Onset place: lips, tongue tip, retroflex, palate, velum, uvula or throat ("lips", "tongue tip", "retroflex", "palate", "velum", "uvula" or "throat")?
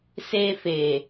tongue tip